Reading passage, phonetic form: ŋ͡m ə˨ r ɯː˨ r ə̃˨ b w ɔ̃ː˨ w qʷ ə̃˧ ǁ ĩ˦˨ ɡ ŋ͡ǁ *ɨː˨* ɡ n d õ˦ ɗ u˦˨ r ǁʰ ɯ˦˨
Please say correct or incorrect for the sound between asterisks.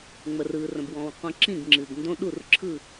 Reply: correct